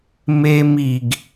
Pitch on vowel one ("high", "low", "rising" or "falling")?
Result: high